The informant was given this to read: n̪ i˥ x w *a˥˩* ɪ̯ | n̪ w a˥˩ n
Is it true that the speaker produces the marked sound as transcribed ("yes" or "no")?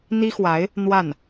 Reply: no